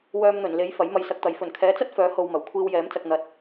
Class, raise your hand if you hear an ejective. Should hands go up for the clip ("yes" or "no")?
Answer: no